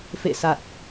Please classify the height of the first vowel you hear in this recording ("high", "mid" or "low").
mid